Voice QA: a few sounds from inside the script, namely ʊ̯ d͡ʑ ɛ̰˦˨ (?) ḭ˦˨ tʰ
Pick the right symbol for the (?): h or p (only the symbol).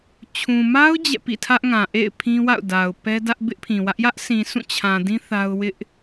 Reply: p